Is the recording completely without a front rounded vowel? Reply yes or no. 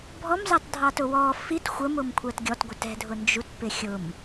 yes